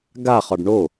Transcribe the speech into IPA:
ɡ a χ ɒ ɖ ɳ o

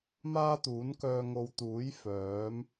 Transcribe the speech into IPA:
m aː˥ t̪ uː˨˥ n k œː˧ ŋ o˨˧ w t̪ uː˨˥ j f œː˨˥ m

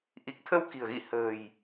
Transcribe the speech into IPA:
ʔ i˨˩ k̚ t̪ʰ ə˧ w k i̤˨˩ ə̯ ɣ ḭ˧˨ h ə̤ː˨˩ j

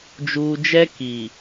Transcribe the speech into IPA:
d͡ʒ uː˨ d͡ʒ ɛ˦ k i˨

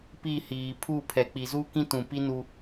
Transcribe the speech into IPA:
p i˦˨ h iː˨ pʰ u˦˨ pʰ ɛ˨ k͡p i˨ z u˦ k ĩ˦ t ũ˨ p i˦ n u˦

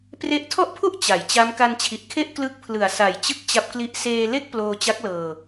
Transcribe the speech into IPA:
p r e˦˥ ʔ tʰ ɔ˥˩ ʔ pʰ u˥˩ ʔ t͡ɕ a˩˦ j t͡ɕ a˦˥ m k a˧ n t͡ɕʰ i˨˩ ʔ kʰ e˥˩ ʔ k l ɯ˦˥ k̚ pʰ l ɯ˨˩ a̯ s a˨˩ j t͡ɕ ɯ˦˥ k̚ t͡ɕ a˦˥ p̚ k l i˦˥ ʔ s eː˧ l e˥˩ k̚ p l oː˧ t͡ɕ a˦˥ k̚ l ɤː˧

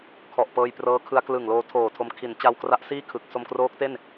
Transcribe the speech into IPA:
kʰ ɔ˨˩ ʔ p ɤː˧ j p r ɤː˦˥ kʰ ɯ˧ a̯ k l ɯ˨˩ ŋ l oː˧ tʰ oː˨˩ tʰ o˧ m kʰ i˩˦ n t͡ɕ a˧ w k r a˦˥ ʔ s iː˥˩ kʰ ɯ˨˩ k̚ s o˧ m k r oː˦˥ k̚ t e˥˩ n

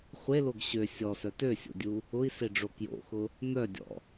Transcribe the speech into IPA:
χʷ e l o ɡ ɕ ø sʲ ɔ s œ t ø sʲ o̰ dʲ u | ʊ i̯ s e ɖ͡ʐ o k j o̰ x ʊ | n̪ œ dʲ ɔ̰

